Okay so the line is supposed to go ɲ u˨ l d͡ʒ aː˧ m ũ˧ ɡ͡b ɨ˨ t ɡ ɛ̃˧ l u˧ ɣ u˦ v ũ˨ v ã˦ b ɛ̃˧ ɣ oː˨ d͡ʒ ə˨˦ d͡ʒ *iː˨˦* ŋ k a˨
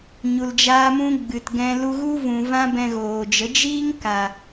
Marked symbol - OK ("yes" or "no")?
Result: no